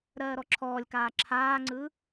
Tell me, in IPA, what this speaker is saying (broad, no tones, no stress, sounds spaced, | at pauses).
ɾ ɜː ɾ ɔ ǁʰ ɔː lʲ k aː ǁʰ aː ŋ͡ǀ ɯː